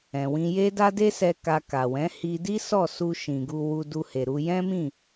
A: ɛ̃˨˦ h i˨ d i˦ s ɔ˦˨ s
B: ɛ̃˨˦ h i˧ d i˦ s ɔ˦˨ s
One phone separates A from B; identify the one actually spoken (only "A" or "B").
B